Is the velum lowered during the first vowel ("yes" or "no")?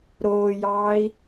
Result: no